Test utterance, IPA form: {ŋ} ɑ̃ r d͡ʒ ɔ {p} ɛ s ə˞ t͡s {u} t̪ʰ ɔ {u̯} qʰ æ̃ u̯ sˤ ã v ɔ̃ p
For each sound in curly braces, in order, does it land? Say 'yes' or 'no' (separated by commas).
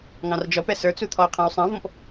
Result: yes, yes, yes, no